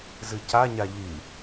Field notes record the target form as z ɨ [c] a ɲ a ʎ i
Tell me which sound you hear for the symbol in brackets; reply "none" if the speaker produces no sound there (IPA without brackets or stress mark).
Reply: c